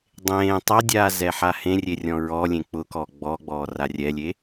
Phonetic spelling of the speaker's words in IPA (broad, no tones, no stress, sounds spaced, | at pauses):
dˤ ẽː tˤ a dʲ aː z ɛ ħ a h ẽ rʲ e rʲ ɔ̃ ɹ ɔ lʲ ẽ k͡p ʊ k ɔː ɡ͡b ɔ ɡ͡b ɔː r a rʲ ɛ lʲ e